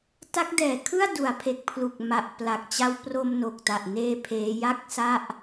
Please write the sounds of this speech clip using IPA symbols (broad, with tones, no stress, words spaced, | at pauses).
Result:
ta˦˥k̚dɛː˨˩kʰɯ˥˩a̯ du˩˦a̯pʰe˨˩k̚ pʰlu˨˩k̚ma˨˩ʔpla˨˩k̚t͡ɕa˦˥w pro˧m no˨˩k̚ta˨˩ʔneː˧ pʰeː˦˥ ja˥˩k̚sa˥˩ʔ